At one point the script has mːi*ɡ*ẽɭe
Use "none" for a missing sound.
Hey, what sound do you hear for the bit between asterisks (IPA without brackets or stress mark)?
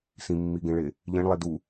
ɡ